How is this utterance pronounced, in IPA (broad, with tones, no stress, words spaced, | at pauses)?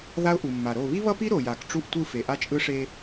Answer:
ða˦ʊ̯ʔu˨mːa˨ ɾo˦˨ βi˦βʌ˦pi˦ ɾo˨ja˨k ʈ͡ʂu˦˨ʔtʷɯ˦˨ fe˨ʔa˦t͡ʃʼɯ˦ʂe˦